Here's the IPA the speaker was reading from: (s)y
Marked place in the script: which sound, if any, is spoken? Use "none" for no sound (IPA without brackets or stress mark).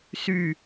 s